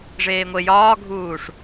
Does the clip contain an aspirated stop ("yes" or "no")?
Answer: no